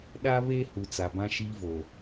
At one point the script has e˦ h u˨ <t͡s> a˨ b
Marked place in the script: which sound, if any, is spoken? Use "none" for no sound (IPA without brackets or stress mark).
t͡s